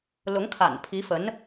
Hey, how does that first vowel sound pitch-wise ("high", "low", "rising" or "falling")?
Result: rising